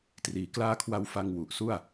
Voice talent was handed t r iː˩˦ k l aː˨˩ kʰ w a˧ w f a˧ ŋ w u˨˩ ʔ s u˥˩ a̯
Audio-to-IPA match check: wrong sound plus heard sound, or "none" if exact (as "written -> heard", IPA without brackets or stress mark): aː˨˩ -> aː˦˥